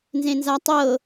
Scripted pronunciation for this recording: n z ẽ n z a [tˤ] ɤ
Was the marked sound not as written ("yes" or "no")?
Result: no